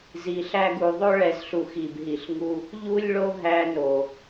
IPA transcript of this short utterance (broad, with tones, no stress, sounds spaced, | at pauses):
z i˨ ɬ æ˧ ɡ u˨ ðˤ o˦ ɭ ɛ˨ z ɬ u˨ x i˨ b ɦ i˨ ɬ ŋ u˧ | ʎ u˦ lʲ ɭ o˦ ɦ æ˧ n o˨